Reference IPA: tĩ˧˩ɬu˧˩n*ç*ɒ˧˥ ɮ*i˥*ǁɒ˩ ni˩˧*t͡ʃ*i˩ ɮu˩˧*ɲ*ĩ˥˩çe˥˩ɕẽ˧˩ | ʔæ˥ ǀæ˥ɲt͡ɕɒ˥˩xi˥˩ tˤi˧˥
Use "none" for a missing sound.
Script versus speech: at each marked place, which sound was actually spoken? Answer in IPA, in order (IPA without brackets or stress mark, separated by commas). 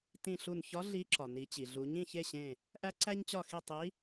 ç, i˧˥, t͡ɕ, ɲ